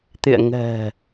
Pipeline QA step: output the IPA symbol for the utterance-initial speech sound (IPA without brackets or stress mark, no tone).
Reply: t̪